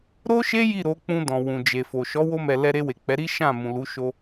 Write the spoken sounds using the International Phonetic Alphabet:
ɾo˦ʃe˦ ji˦˨ɾo˨˦k͡pũ˧ dɔ̃˨wũ˨d͡ʒe˨fo˨ ʃɔ˨˦wo˧mɛ˨ lɛ˧ɾe˧we˨ k͡pɛ˨˦ɾi˦ ʃã˦˨mũ˨ lu˨˦ ʃo˧

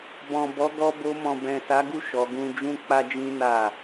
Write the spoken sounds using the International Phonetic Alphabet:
bɔ̃˨ bɔ˨˦ɡɔ˧bo˧ mɔ̃˨bɛ̃˨sa˨˦ɡu˦˨ ʃɔ˨˦ɡũ˦ d͡ʒũ˦k͡pa˦d͡ʒĩ˦ na˦˨

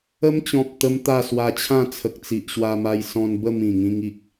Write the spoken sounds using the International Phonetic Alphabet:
ə˦mt͡ɕɔ̃˨p̚ t̪ə˦mt̪a˥˧ swa˧t͡ɕʰã˥˧t͡sʰə˨k̚ t͡si˨ʔɕwa˧ma˧j sɔ̃˧nbə˥˧ mĩ˨˩ŋĩ˧ŋi˨k̚

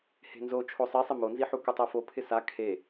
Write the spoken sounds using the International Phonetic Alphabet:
he̤nzo t͡ʃʰosˤisˤɪ monziħu kutˤɛfo pʰɪsa kʰe

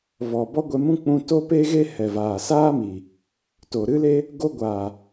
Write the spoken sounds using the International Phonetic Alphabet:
vɔ˨ bɔ˦ɡʷɛ˧mũ˦ k͡pũ˧to˦ pe˦ɣe˦ hɛ˨vaː˨saː˦miː˨ | to˨ɾɨ˦le˦ | ɡo˧ ɡʷaː˨

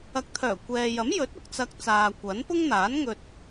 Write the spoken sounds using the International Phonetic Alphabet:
ɐ˨˥k̚t̪ʰœː˨˩ kʷɛː˨jɐ˨˥mjɵ˨˥t̚ʊ˨k̚ t͡sɐ˧k̚ t͡saː˨kʷɐ˨˥n pʊ˥ŋn̪aː˨˥nŋɵ˧t̚

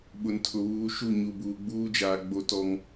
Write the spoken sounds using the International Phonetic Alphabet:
ɓʊ˨ntʰʊ˨βuː˨˦ ʃu˦˨ ɲu˨buː˨ɡ͡buː˦d͡ʒaː˨ ɡ͡bo˦tɔ˦ŋ

